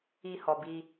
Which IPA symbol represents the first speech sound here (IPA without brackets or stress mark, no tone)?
i